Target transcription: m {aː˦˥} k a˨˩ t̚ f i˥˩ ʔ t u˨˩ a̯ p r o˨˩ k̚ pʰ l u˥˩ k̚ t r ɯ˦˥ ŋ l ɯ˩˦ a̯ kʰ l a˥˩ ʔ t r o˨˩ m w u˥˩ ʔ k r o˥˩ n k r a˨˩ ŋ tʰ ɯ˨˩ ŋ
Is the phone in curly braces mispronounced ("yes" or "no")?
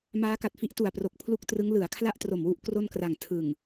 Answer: no